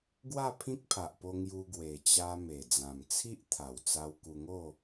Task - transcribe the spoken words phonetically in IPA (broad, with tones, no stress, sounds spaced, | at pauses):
ɡ w a˥˧ pʰ ĩ˦ k̚ pʰ a˨ ʔ p o˧ ŋ j u˧ ɡ w e˨˩ t͡ɕ a˧ m e˨˩ d͡z ã˨˩ m t͡sʰ i˦ ʔ t̪ʰ a˨˩ w t͡s a˧ w k u˧ ŋ o˥˧